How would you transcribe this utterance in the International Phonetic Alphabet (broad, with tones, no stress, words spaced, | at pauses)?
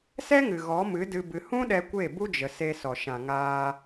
sɛ˦ŋɨ˨ ɣɔ˨˦mɨ˨˦dɨ˧ bɨ˧ hũ˦ɗɛ˧ kʷe˦˨bu˦d͡ʒə˨ se˧sɔ˨ʃã˨ŋaː˧